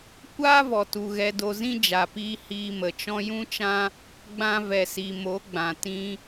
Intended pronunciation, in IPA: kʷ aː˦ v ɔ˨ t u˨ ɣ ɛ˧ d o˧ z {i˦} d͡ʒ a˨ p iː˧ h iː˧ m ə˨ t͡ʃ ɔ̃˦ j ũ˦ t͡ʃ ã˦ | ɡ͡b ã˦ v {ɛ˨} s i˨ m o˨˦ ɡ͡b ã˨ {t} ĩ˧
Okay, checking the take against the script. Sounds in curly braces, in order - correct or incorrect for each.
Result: incorrect: ĩ˦, correct, correct

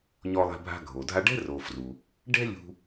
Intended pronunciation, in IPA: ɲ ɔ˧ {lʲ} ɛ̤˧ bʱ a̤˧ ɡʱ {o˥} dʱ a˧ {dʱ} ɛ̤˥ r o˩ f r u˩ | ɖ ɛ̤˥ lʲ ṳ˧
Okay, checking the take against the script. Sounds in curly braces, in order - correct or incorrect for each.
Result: incorrect: lˠ, incorrect: o˩, incorrect: ɖ

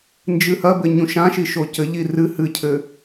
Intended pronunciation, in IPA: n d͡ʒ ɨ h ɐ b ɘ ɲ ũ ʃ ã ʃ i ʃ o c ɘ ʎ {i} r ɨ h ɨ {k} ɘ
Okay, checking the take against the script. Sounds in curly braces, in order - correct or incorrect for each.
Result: correct, incorrect: cʰ

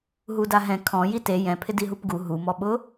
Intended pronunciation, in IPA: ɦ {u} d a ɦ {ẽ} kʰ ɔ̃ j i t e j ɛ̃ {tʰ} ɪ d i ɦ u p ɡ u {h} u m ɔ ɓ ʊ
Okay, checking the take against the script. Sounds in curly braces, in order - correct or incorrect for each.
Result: correct, incorrect: ɛ̃, incorrect: pʰ, incorrect: ɦ

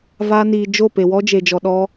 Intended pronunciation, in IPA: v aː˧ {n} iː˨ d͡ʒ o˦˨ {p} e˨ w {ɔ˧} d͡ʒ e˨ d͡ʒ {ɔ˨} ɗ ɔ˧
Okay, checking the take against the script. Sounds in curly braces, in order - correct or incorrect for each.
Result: correct, correct, incorrect: ɔ˦, correct

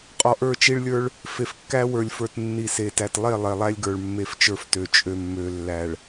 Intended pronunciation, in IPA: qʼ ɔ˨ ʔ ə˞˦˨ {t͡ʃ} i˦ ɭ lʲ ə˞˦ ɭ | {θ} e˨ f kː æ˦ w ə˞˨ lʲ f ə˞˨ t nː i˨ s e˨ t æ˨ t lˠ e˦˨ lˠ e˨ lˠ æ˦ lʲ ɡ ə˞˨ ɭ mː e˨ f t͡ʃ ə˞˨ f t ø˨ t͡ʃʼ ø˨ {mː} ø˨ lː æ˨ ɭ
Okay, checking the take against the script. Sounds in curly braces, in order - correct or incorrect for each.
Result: correct, incorrect: f, correct

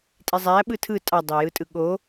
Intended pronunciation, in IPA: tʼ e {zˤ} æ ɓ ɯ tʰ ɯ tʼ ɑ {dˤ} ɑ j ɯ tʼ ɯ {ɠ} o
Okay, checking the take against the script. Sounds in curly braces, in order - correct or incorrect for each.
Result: correct, correct, correct

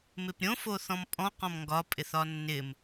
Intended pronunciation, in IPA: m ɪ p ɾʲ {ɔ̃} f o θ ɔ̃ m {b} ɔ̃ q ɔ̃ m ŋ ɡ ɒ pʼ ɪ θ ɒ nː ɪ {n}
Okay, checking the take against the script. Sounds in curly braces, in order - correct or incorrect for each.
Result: incorrect: õ, incorrect: pʼ, incorrect: m

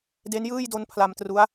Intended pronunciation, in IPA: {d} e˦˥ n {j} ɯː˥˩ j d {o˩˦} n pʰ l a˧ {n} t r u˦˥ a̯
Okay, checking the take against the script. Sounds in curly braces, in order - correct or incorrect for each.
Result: correct, correct, incorrect: o˦˥, incorrect: m

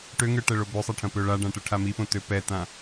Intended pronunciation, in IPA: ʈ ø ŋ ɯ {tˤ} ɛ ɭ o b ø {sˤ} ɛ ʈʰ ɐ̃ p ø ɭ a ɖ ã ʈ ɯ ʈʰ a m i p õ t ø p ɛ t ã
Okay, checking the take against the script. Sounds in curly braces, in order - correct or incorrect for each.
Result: incorrect: ʈ, correct

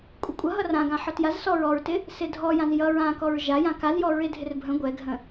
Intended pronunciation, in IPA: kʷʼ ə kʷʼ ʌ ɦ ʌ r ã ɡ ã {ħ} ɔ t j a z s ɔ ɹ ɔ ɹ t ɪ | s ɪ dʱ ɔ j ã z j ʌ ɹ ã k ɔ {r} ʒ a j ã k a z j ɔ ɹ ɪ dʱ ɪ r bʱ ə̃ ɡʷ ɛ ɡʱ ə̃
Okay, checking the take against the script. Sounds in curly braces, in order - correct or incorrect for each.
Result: correct, incorrect: ɹ

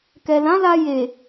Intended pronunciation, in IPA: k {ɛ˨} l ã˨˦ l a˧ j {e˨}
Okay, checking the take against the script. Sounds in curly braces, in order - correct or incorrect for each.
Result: correct, correct

